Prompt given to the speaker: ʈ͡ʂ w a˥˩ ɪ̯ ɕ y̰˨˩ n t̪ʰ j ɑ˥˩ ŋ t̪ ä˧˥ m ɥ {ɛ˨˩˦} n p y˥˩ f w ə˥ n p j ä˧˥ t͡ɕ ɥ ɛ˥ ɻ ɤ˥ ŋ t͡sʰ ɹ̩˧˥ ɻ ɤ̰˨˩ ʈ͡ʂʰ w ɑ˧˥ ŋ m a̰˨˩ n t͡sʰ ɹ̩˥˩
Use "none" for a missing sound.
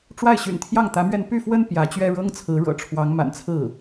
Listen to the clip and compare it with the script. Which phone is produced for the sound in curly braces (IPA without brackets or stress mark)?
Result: ɛ˥˧